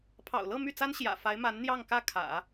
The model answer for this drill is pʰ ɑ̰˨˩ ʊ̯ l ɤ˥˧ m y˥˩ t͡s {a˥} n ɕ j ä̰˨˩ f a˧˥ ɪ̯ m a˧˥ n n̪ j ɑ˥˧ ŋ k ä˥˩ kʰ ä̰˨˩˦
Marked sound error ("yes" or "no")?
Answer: no